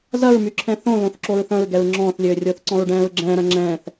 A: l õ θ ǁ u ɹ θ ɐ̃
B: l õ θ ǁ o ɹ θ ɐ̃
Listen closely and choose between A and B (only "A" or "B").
B